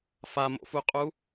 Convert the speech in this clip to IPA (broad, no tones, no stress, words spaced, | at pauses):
famo̰fuqʼu